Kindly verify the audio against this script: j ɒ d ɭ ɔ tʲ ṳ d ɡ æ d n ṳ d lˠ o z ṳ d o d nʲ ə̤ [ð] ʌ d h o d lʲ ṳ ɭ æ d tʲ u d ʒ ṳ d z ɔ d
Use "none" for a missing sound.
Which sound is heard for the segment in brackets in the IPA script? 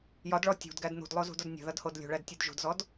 ð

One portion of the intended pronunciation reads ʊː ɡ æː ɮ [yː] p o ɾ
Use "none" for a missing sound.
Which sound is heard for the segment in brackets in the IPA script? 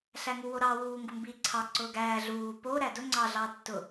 uː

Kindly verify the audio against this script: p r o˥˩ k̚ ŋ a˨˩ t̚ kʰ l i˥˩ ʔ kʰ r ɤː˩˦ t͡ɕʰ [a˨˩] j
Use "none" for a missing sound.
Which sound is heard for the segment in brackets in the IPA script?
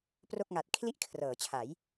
a˩˦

